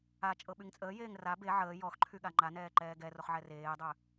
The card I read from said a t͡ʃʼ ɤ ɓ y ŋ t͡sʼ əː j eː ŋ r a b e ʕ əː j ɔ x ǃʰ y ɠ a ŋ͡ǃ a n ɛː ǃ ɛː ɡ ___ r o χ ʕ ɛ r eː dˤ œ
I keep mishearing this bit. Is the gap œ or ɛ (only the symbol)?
ɛ